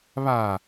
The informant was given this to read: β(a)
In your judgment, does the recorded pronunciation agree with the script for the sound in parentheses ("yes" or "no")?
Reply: yes